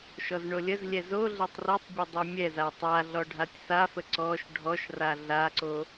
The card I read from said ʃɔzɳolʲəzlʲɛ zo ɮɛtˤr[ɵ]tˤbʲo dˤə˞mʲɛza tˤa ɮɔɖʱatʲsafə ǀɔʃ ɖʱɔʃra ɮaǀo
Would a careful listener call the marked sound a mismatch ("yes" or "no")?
yes